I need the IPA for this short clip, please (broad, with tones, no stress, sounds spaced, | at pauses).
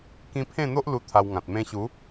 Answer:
k ĩ˧ pʰ ẽ˥˧ n̪ o˦ ʔ l u˥˧ t̪ʰ a˧ w ŋ ã˨ t̚ m ẽ˧ ɕ u˨˦